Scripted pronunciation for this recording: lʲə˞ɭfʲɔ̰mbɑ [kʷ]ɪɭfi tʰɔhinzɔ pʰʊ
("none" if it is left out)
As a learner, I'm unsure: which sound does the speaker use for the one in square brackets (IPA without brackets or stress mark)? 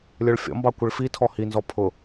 kʷ